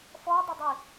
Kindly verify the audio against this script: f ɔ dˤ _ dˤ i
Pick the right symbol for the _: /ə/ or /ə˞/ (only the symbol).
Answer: ə